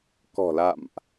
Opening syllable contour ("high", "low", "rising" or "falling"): low